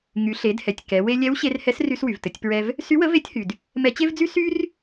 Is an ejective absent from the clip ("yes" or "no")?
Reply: yes